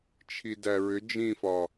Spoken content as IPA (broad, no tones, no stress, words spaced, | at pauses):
t͡ʃʰidæɹʏ d͡ʒĩfɒ